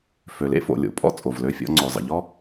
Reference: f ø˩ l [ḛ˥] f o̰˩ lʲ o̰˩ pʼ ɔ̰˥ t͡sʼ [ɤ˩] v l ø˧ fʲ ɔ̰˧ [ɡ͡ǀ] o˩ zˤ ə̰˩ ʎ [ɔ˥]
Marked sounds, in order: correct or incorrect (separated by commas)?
correct, incorrect, incorrect, correct